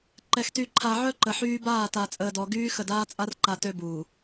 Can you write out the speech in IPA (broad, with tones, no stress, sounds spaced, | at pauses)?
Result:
ǃ ɛ˨ x t y˨ ǃʰ a˨ ʕ œ˦ ǃ ə˨ ħ yː˦ b aː˦˨ t a˨ t͡sʼ əː˨ d ɔ˨ ɡ yː˦ x ə˨ d aː˦ t͡sʼ a˦ r ǃ a˨ t ø˦ b uː˨